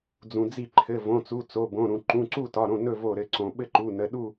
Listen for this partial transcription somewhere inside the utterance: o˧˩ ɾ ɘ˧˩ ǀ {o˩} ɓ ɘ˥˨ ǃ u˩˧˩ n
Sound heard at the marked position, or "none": õ˩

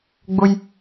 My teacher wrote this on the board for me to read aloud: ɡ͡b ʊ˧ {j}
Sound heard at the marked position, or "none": j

